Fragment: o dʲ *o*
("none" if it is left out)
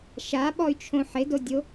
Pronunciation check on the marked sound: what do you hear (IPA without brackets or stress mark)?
o